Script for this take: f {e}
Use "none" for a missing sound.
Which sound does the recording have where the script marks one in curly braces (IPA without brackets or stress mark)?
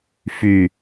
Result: y